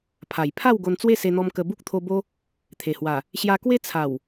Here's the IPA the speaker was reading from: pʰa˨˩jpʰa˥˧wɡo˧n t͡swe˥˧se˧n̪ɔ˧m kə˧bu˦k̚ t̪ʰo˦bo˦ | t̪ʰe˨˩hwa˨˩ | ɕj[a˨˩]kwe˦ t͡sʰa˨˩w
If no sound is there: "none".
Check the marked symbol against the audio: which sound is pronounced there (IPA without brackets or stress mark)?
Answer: a˧